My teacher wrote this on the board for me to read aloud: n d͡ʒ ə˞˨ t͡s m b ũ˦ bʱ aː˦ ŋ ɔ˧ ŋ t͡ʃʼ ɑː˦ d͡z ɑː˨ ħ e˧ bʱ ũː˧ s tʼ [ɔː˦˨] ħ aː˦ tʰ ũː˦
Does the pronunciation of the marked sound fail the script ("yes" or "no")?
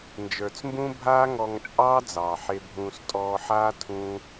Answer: yes